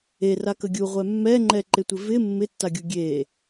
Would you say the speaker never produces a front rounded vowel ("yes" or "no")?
yes